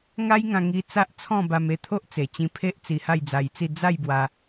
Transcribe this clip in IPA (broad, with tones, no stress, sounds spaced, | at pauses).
ŋ a˦ j ŋ ã˧ ŋ i˧ t͡s a˦ ʔ t͡sʰ ɔ̃˥˧ b a˧ m e˥˧ t̪ʰ o˦ ʔ t͡s e˨˩ t͡ɕ ĩ˧ pʰ e˦ ʔ t͡s i˧ h a˥˧ j d͡z a˧ j t͡s i˥˧ d͡z a˥˧ j b w a˧